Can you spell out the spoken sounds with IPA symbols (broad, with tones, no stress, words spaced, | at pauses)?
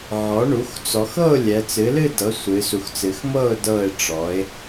ʕɔ˩˥ɳu˩˥x t͡sɔ˩˧xɤ˥˨ʊ̯ lʲɛ˩˧t͡sɨ˩˥lɨ˥˨dɤ˩˥ sʷɨ˩˧su˩˧xt͡sɨ˩˧xmɤ˥˨ʊ̯ dɤ˧˩ɪ̯ʈ͡ʂɔ˩˧ɪ̯